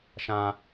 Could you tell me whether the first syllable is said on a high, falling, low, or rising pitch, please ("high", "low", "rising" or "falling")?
high